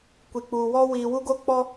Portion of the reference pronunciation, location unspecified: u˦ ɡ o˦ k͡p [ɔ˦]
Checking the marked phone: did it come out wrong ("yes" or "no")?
no